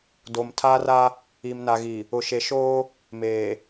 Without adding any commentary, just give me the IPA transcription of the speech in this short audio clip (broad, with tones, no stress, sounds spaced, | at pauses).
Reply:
d o˨ m tʰ aː˦ r a˦ | i˨ m n a˨ ɣ i˨ | ʊ˨ ʃ e˨ ʃ oː˦ | m eː˨